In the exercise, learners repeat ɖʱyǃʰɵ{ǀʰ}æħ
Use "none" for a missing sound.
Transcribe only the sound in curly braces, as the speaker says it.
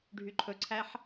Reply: ǀʰ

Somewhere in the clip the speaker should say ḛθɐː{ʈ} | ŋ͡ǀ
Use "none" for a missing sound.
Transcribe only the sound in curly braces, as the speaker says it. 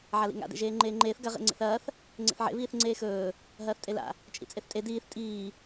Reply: θ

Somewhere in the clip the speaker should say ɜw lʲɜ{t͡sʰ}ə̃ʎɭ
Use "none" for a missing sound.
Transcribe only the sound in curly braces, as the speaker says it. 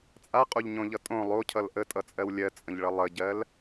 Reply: t͡sʼ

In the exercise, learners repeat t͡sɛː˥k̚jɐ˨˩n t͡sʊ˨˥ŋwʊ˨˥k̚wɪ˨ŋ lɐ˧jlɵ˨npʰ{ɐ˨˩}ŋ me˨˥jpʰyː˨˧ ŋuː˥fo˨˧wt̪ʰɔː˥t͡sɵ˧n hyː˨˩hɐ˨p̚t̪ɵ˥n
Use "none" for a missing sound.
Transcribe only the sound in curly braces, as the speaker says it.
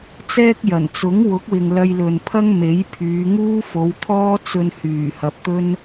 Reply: ɐ˥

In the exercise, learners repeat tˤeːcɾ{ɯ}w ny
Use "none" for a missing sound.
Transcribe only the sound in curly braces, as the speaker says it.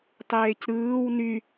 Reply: ɯː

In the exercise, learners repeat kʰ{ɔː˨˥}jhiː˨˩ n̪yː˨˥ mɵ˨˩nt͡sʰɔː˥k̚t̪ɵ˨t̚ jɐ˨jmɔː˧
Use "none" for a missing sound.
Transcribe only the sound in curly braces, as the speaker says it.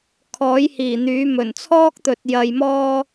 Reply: ɔː˨˥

